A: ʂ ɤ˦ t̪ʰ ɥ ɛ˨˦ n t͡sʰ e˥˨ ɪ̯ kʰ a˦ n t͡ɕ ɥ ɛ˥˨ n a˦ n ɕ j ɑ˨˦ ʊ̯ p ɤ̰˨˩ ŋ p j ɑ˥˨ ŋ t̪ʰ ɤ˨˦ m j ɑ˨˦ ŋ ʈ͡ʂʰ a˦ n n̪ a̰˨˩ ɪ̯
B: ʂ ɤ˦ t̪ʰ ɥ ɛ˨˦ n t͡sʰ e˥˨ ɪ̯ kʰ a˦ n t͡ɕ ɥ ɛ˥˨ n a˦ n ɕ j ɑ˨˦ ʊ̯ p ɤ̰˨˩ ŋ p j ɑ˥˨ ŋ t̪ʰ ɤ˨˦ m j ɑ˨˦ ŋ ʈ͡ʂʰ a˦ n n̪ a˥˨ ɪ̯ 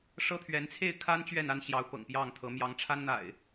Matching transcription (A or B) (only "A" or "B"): A